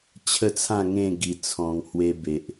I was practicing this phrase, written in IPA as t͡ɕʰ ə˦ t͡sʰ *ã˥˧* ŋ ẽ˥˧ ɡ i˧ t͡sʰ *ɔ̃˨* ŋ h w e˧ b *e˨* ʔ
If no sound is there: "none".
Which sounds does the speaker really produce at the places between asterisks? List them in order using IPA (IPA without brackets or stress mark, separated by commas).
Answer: ã˥˧, ɔ̃˧, e˨